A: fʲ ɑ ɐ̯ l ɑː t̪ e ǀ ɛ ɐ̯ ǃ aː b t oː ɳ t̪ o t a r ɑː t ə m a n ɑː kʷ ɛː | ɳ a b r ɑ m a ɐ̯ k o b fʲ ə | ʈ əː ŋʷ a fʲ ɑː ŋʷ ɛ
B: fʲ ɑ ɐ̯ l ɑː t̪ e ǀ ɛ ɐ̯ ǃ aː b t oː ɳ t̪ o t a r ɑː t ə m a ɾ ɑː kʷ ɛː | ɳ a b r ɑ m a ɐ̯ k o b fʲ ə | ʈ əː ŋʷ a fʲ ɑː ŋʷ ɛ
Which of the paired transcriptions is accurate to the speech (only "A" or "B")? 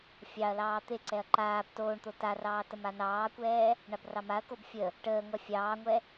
A